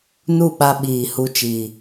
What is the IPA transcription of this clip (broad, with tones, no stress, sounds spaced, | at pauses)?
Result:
n u˦˨ ɓ a˧ ɓ iː˨ h u˧ t͡ʃ iː˨